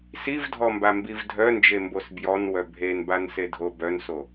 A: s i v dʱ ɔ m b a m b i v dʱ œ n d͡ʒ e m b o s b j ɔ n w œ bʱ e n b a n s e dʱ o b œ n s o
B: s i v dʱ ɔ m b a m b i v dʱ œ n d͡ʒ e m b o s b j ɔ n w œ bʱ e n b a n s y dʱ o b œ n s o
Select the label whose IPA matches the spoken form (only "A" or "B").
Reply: A